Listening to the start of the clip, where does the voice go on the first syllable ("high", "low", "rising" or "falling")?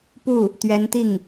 falling